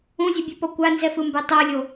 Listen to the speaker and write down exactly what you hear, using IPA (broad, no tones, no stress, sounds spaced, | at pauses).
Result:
ũ zʲ o bʲ ɛ p ɔ kʷ a n z ɛ f ɯ m b ɛ tˤ ɤ lʲ o